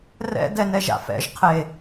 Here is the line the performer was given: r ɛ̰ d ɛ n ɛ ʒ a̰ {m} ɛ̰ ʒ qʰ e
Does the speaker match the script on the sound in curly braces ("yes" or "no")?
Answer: no